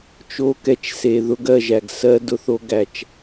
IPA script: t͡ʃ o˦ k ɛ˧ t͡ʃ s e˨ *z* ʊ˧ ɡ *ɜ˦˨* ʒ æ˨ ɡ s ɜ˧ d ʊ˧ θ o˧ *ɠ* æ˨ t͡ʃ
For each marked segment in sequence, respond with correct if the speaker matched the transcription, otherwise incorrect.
incorrect, correct, incorrect

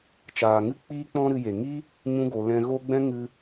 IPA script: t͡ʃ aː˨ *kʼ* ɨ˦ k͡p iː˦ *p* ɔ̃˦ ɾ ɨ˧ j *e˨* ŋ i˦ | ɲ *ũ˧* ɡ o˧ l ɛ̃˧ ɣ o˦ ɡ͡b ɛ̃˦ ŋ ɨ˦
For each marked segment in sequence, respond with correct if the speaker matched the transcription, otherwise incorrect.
incorrect, incorrect, correct, incorrect

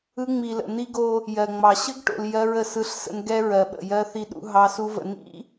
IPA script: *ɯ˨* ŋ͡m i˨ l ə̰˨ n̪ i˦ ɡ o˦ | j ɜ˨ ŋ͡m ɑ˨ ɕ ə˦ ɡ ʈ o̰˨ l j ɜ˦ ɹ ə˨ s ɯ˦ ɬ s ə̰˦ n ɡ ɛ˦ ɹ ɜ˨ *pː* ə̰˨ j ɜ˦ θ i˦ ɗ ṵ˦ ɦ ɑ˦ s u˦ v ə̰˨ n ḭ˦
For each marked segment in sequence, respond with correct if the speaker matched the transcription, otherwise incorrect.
incorrect, incorrect

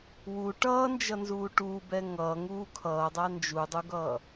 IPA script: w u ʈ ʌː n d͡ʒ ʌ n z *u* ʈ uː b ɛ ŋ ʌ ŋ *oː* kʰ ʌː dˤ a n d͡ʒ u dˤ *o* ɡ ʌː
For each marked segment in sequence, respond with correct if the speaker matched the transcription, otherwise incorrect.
incorrect, incorrect, incorrect

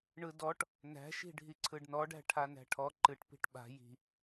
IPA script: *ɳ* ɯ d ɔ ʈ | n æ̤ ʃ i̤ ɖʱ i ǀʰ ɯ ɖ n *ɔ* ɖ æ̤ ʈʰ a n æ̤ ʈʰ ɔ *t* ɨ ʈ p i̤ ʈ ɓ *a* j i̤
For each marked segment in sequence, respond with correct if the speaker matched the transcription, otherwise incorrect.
correct, correct, incorrect, incorrect

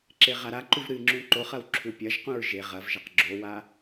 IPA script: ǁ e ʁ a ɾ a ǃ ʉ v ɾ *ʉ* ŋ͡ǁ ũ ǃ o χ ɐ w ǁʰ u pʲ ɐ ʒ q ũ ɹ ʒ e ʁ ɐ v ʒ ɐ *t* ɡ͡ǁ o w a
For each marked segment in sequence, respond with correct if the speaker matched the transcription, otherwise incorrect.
incorrect, incorrect

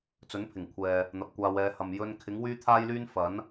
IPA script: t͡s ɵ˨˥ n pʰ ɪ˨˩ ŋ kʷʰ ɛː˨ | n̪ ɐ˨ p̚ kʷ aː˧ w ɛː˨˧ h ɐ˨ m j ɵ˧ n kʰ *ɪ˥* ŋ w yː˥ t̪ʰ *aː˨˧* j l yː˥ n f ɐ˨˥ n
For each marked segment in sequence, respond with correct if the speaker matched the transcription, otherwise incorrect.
incorrect, incorrect

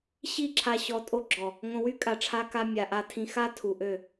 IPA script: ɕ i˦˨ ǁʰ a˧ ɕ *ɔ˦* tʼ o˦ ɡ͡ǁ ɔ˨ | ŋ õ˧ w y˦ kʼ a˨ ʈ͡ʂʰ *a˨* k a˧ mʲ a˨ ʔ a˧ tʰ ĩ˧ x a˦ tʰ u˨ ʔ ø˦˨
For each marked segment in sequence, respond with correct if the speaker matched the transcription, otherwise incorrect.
incorrect, incorrect

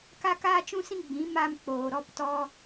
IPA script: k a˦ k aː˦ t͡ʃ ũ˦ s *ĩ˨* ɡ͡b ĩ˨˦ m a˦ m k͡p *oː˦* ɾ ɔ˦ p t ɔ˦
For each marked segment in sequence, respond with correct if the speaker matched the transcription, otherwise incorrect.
incorrect, incorrect

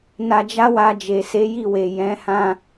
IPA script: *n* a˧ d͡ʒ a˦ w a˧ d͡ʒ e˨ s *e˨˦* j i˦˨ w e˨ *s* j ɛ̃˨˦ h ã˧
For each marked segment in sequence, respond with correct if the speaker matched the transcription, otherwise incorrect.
correct, correct, incorrect

